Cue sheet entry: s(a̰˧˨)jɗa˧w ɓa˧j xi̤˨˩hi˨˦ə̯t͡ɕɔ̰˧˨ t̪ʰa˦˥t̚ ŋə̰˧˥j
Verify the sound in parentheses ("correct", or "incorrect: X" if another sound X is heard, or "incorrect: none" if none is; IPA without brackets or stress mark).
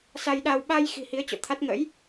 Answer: incorrect: a˧